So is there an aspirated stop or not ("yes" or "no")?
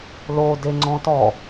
no